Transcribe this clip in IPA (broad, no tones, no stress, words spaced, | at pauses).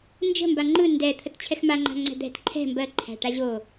nd͡ʒə̤mba ŋ͡ǃɯ ndɛ t̪ʰətt͡ɕʰɛxmaŋ͡ǃa̤ ŋ͡ǀɛ̤d̪ɛ̤t ǃʰɛ̤ mbɜ ǃʰæ̤ʈaʑo